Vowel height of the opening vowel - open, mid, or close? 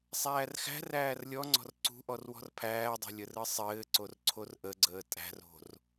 open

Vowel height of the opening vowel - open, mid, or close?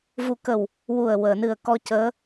close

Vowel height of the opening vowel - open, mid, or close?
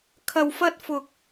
open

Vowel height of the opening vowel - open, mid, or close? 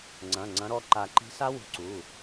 open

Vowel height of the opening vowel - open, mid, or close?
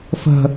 mid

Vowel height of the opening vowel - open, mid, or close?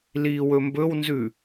close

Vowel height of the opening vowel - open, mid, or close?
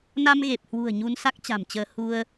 open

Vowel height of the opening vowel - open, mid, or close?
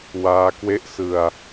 open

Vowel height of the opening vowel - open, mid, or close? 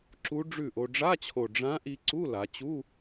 close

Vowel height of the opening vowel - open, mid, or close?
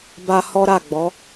open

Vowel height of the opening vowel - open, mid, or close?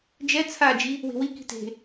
mid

